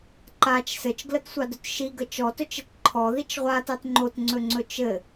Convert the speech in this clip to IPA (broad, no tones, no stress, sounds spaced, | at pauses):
ǃ a t͡ʃ s ɘ t͡ʃ ɡ l ə t sʷ ɑ d ɵ t ʃ i ɡ ə t͡ʃ ɔ t ɵ t͡ʃ ɘ t ǃʰ ɔ ð i t͡ʃ ʁʷ a t ɑ t ŋ͡ǃ o t ŋ͡ǀ ɵ ŋ͡ǀ ɵ t͡ʃ ɘ